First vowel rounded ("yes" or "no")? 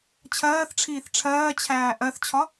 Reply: no